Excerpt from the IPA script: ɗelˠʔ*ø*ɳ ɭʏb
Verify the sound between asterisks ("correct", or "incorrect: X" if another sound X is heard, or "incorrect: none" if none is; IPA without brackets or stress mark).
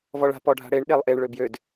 incorrect: e